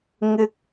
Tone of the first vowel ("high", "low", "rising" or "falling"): high